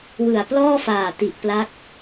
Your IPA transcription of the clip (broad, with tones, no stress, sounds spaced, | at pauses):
w ɯ˨˩ a̯ p l ɔː˥˩ f aː˨˩ t i˨˩ ʔ p l a˦˥ k̚